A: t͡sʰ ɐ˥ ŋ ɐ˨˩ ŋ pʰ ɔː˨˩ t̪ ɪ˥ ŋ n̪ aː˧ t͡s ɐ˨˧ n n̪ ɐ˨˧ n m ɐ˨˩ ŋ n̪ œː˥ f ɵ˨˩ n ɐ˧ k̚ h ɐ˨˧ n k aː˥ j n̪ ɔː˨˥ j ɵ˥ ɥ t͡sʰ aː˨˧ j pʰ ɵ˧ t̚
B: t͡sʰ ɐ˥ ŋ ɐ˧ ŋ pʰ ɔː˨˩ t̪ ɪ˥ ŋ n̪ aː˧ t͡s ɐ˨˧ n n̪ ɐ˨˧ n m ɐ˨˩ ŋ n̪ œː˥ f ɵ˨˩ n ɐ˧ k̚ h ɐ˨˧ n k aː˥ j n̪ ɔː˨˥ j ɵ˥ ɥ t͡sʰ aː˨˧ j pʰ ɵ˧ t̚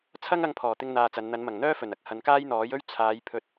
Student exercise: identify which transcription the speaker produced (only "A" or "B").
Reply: B